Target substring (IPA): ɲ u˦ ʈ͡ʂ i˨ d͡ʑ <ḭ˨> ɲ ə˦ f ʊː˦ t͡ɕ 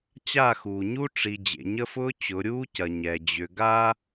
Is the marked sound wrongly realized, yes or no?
yes